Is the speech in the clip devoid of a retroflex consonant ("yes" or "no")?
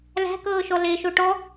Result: no